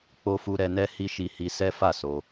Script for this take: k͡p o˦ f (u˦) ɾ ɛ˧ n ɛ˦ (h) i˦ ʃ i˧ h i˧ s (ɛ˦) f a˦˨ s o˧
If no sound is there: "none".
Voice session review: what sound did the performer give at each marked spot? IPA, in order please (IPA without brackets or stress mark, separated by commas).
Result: u˦, h, ɛ˦